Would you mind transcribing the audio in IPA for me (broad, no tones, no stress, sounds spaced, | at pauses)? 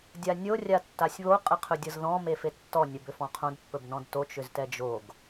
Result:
dʲ a nʲ o rʲ a tː a sʲ β o qʼ ə qʰ ɵ dʲ ɤ z ð ɔ̃ m e f e tː ɔ nʲ ɛ b ʏ f ɔ̃ qʰ õ d pː ɵ b n ɔ̃ d t o t͡ʃ ʏ z t ɛ d͡ʒ o ɡ